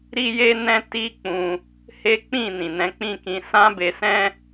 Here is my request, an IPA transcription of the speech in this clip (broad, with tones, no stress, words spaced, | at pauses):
ɾi˦ je˦nɛ̃˦ ti˦k͡pũ˧ | he˦k͡pĩ˦˨nĩ˨ nɛ̃˨˦k͡pĩ˦˨kĩ˧ sã˦be˧sɛ̃˦